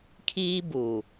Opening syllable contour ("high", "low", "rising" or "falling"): high